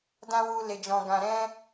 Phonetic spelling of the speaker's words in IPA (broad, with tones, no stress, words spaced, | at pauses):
dã˦wu˧ le˨d͡ʒɔ̃˨ ɡã˨ɾɛ̃˧